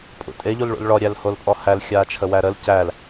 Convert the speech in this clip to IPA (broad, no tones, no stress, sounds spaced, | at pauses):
pʼ ṵ tʼ e ʎ u l ɭ ṵ l ɭ ɔ ɾʲ æ l h o l pʼ ɔ h æ l xʲ aː t͡ʃʰ ə w æ ɾ ə l c æ l